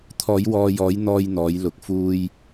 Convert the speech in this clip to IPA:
t̪ʰ ɔː˨˧ j w ɔː˨ j ɔː˨˧ j n̪ ɔː˧ j n̪ ɔː˨˧ j l ʊ˨ k̚ f uː˧ j

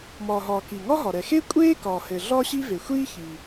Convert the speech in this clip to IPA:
m ɒː˩ ɦ ɒː˩ k i˩ ŋ ɒ˥ ɦ ɒ˩ ɾ ɛ˩ x e˥ kʷʼ eː˥ k ɒː˩ h ɘ˩ ɮ ɒː˥ ɕ i˥ v e˩ xʷ iː˥ ç iː˩

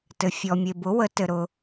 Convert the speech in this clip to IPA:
t ɘ˨ fʲ ɔ˨ mʲ e˨ b ʊ˨˥ w ə˨˥ t ɘ˨ ɾ ʊ˨

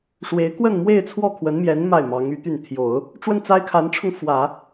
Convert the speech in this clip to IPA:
ʂ w e˧˥ ɪ̯ k w ə˥˧ n m w e˥˧ ɪ̯ t͡sʰ w ɔ˥˩ kʰ w ə˧˥ n m j ɛ˧˥ n m a˥˩ ɪ̯ m ɑ˧˥ ŋ y˧˥ t̪ y˥˩ n t̪ʰ j o˨˩˦ ʊ̯ | ʈ͡ʂ w ə˥˩ n t͡s a˥ ɪ̯ kʰ a˧˥ n ʈ͡ʂʰ ʊ˧ ŋ f w ä˨˩˦

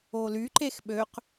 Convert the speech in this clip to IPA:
o l y ǃ e x ɓ ø q

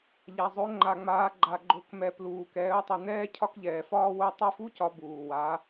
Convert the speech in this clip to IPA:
ʎ a˩ zˤ o˩˧ ŋ͡ǃ a˩ ŋ͡m aː˩˧ ɡ͡ǃ a˩ ɡ͡ǃ o˩˧ k m ɛ˩ p l uː˩ k ɛː˩˧ ʊ̯ tˤ u˩ n̪ ɛː˧ cʰ ɒ˧ k ʎ ɛː˩ f ɒː˧ w o˧ tˤ o˧ f u˧˥ c ɒ˩˧ b uː˩ w a˩˧

